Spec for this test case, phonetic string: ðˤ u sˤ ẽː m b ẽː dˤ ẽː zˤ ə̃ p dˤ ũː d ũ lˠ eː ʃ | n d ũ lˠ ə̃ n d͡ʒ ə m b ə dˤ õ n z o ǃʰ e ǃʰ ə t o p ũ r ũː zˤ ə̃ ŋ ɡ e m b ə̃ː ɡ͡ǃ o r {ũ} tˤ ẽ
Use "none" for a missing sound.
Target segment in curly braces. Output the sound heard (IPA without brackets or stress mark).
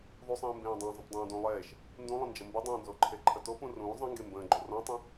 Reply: õ